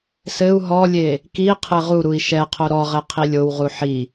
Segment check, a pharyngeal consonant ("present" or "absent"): present